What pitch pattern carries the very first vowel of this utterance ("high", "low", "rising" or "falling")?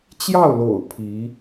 falling